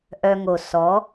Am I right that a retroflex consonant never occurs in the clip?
yes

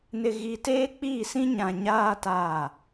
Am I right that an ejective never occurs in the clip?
yes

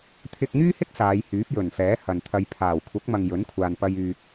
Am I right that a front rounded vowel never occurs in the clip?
no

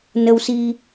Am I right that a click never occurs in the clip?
yes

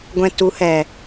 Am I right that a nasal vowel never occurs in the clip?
no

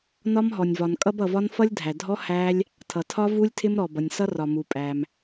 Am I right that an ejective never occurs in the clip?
no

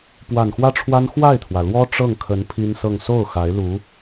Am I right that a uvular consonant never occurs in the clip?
yes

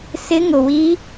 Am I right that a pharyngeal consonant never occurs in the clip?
yes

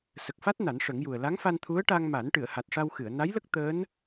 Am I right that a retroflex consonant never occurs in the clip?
no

